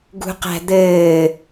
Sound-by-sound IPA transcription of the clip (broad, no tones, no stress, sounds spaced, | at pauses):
ɡ ṳ q æ̤ d̪ ɘː